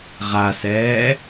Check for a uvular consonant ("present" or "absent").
present